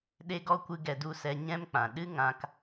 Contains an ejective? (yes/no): no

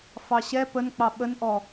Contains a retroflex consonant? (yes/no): no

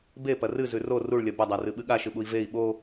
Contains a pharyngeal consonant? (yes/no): no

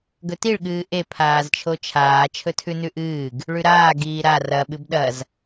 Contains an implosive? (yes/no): yes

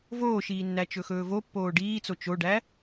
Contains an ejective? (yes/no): no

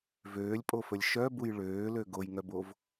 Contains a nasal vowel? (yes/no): no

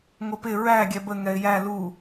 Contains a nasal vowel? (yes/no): no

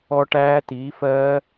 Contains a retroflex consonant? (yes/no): yes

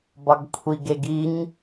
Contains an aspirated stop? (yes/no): yes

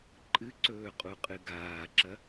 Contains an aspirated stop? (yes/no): no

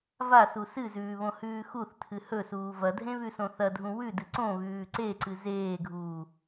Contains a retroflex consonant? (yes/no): no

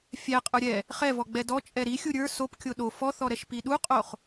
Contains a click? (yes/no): no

